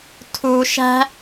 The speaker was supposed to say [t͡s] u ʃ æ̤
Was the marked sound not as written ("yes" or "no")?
yes